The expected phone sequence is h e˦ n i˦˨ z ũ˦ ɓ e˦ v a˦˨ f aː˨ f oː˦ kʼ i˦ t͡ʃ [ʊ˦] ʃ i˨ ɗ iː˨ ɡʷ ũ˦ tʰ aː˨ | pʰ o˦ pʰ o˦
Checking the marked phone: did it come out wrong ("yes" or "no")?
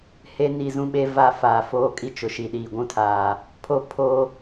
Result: yes